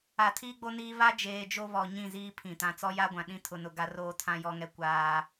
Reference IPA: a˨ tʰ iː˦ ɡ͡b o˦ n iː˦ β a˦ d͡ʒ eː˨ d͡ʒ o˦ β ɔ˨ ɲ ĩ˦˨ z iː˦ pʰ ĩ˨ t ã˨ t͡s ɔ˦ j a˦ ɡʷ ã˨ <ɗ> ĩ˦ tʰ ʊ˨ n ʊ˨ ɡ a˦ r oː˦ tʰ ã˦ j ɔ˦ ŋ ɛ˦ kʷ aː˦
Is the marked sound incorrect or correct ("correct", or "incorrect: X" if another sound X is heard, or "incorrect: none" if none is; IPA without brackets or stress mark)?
correct